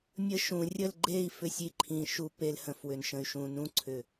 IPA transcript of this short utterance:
mʲ ə˦ ʃ ũ˨ rʲ ə˦˨ l ɡ͡ǃ e˦˨ i̯ f ʏ˦˨ sʲ i˦ ǃʰ ĩ˨ ʃ u˦ p e˦ l h ə̃˨ f w ʏ˨ n ʃ ə̃˨ y̯ ʃ ũ˨ n ũ˦ ǀʰ ʏ˨

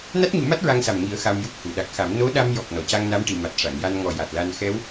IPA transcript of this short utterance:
n a˦˥ t̚ ɲ u˨˩˦ m a˦˥ t̚ ɹ a˧ ŋ s a˨˩ m ŋ i˨˩˦ ə̯ x a˧ m j u˦˥ p̚ h u˨˩˨ ɗ a˨˩ k̚ x a˨˩˦ m n o˧˥ ɗ a˧ m j ɔ˨˩ k̚ n ɔ˨˩˨ c a˧ ŋ n a˧˥ m ʈ i˨˩˨ m a˨˩ t̚ ʂ a˨˩˨ ŋ j a˧ n ŋ ɔ˨˩ j a˨˩ t̚ l a˧ n x ɛ˧˥ w

